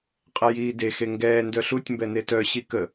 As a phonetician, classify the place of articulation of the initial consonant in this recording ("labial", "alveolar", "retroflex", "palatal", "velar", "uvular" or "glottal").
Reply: uvular